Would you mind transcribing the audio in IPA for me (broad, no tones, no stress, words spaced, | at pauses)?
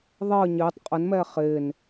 ðˤəː ɲɪːtˤ qʼənmɛː χɪːn